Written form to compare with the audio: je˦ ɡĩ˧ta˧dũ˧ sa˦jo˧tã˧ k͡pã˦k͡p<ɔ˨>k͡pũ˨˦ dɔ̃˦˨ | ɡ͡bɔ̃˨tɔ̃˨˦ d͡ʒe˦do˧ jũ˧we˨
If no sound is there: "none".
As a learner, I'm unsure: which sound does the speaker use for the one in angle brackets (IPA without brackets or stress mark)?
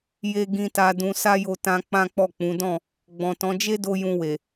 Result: ɔ˦˨